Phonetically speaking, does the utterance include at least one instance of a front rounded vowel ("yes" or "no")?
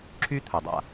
yes